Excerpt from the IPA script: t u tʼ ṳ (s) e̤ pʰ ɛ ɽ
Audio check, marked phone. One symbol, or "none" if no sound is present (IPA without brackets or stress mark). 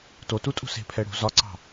s